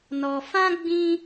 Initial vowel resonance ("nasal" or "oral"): oral